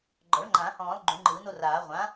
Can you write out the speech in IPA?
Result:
ɡ͡ǃɔ̤˩˥ɭŋ͡ǃã˨˩˦ hɔ̃ː˨˩˦lˠ ɡ͡ǃũ˨˩˦ŋ͡ǃɯː˨˩˦no˥˧raː˨˩˦ ʁʷã˩˥

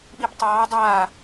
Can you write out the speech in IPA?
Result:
ɓibtˤɑː dˤaː

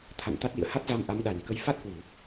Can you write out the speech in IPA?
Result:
t̪ʰa̰˧˨n t̪a˦˥t̚lḭ˧˨ə̯ ha˦˥t̚za˧m ʔa˨˦mɗa˨˩nkə˧j fa˦˥t̚hwu˧˩˨

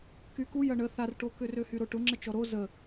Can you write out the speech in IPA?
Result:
kyku jɐɳə θarʈokʏrø hyɾoʈʊ ŋ͡ǁət͡ʃɔɾo zə

